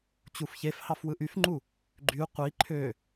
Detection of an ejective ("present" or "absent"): absent